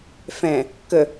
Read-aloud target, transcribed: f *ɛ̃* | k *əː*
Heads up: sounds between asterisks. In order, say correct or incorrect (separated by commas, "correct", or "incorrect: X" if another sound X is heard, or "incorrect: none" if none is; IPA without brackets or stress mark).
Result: correct, incorrect: ə